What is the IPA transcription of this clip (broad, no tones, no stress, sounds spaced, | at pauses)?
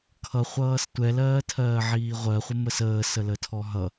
kʰ ʌ χʷ ʌː s tʷ ɛ l ɜː tʰ ɜː ʕ iː ʁʷ ɜ χʷ ʌ m ə s əː s ə l ə tʰ ɔ ɦ ʌ